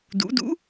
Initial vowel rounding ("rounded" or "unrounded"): rounded